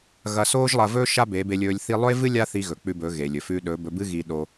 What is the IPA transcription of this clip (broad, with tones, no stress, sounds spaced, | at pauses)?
ɣ ɐ˧ s oː˦ ʒ lˠ ɐ˧ v ɵː˦ ʃ a˦ b e˨˦ b e˧ lʲ ɵː˧ lʲ θ i˦ lˠ ɵ˦ e̯ v ɨ˦ lʲ a˦ θ i˧ ɣ ɵ˨ k͡p ʉ˧ b ɵ˨˦ ɣ e˨ lʲ ɵ˨ f ʉ˧ ɗ ɵ˨˦ b ɵ˧ b ɨ˦ ɣ i˧ ɗ o˧